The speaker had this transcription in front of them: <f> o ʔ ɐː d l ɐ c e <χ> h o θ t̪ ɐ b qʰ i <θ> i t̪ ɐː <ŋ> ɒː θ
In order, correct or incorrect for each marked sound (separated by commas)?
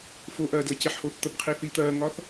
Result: correct, incorrect, correct, correct